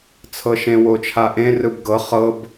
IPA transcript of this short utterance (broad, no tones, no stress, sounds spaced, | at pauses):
t͡sʰ ɤ ʃ ẽ w o t͡ʃʰ a ʔ ẽ r ɯ b ɡ ɤ χ ɤ b